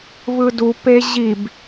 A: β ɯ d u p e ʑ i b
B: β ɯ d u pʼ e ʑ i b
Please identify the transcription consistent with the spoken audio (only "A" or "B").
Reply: A